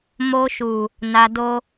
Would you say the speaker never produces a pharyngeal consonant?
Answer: yes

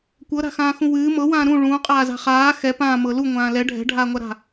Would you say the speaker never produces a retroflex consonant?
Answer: no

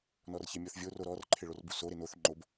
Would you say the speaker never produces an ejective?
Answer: yes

